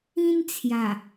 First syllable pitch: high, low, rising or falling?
high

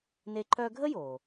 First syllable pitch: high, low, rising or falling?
high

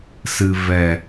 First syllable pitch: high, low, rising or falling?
low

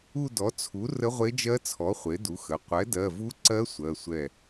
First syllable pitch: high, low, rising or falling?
falling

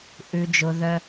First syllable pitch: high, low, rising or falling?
low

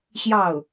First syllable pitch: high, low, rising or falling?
falling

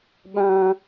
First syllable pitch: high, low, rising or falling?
high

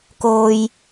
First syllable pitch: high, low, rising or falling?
low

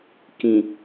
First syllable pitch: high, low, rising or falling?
low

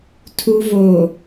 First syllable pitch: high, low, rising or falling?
low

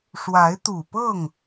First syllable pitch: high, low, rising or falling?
rising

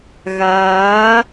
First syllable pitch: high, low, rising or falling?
rising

